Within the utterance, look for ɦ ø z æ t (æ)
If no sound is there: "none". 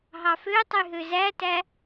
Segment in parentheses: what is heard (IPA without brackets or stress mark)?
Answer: æ